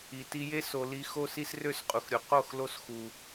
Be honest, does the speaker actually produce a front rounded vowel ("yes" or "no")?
yes